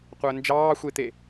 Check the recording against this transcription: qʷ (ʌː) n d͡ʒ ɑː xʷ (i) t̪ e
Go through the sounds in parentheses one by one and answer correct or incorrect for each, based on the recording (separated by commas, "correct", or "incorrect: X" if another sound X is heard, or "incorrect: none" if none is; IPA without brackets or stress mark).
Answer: incorrect: əː, incorrect: e